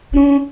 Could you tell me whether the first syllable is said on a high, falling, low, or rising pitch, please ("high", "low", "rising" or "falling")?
high